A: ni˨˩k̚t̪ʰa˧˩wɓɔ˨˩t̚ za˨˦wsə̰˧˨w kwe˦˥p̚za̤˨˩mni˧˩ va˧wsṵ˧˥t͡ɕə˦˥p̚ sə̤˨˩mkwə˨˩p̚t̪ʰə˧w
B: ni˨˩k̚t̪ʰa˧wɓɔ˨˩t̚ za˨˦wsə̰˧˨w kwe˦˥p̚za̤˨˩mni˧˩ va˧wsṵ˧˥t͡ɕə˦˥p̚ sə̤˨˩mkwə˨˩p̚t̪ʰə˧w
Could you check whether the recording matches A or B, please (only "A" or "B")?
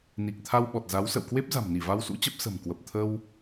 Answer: B